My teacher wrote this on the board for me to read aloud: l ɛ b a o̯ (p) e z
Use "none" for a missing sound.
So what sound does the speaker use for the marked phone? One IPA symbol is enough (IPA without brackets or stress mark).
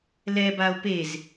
p